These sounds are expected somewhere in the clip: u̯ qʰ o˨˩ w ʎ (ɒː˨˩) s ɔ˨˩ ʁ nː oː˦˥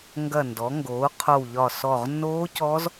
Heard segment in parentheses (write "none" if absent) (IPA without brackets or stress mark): ɒː˨˩